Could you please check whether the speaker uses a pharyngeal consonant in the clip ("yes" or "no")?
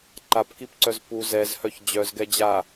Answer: no